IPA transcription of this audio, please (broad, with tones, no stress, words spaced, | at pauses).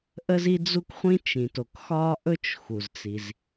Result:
ʔə˥zi˥d͡zu˥kχʷĩ˥ t͡ʃĩ˩to˩k xɒː˥ʔɵ˥t͡ʃ xu˩zt͡si˩z